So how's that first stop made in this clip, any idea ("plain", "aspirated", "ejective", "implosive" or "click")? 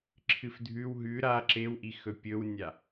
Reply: click